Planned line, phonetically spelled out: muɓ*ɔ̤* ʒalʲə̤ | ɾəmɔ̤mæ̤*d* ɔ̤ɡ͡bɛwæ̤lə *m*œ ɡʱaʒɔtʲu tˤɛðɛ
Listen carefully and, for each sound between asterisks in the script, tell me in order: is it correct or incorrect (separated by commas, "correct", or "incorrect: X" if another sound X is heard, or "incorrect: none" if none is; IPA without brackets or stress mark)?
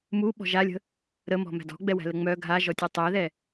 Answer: correct, correct, incorrect: ŋ͡m